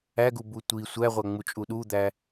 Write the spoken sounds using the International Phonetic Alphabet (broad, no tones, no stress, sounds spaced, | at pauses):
æ ɡ u b u tʷ i sʷ æ ʁʷ æ ŋ͡m u t͡ʃʼ u ɗ u d̪ æ